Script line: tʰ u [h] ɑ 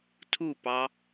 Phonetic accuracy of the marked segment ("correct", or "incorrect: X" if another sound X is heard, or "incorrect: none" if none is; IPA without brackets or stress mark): incorrect: p